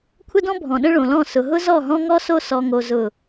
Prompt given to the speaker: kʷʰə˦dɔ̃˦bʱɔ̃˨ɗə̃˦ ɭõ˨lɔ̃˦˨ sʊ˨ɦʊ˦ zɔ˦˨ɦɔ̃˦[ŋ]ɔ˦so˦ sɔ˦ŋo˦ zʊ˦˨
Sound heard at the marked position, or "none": ŋ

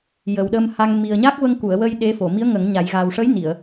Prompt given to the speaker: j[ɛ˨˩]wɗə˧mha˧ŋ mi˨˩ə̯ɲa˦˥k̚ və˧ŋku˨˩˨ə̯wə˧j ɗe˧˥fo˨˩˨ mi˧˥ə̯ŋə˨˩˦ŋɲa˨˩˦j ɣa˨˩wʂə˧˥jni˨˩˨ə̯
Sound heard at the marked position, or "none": ə˨˩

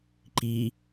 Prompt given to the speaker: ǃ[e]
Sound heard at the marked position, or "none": i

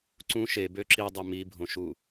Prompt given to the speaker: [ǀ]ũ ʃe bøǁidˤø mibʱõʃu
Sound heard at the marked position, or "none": ǀ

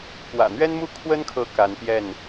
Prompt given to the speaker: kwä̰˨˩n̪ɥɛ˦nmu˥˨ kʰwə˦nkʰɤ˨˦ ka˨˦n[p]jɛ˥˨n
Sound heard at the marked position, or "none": p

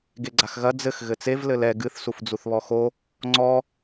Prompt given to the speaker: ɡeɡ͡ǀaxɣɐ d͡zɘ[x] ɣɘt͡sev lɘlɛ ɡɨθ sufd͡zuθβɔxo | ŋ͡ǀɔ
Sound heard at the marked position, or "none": x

